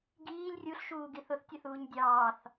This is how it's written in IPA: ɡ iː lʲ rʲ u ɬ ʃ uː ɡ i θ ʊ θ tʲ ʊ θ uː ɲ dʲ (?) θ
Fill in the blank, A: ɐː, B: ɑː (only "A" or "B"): B